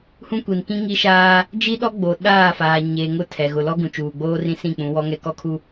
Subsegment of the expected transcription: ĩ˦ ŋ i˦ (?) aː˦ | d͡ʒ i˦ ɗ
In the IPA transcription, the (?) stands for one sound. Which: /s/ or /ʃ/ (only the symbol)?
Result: ʃ